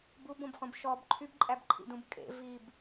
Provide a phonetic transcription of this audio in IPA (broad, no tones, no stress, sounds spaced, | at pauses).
b u b õ b χ ũ b ʃ ɔ b ǃʰ y b ǃʼ æ b ǃʰ ḭ d ũ b kʼ ḛ v i b